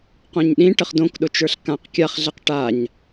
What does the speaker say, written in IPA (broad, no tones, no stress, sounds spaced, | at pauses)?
q õ ɲ ɗ ĩ ʈ ə χ d õ k ɗ ʊ t͡ʃ ə˞ ɬ k ã q kʲ a χ ɮ ɛ q ʈ a ɲ